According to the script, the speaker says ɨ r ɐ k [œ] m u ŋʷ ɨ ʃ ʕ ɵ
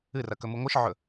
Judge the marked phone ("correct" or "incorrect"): incorrect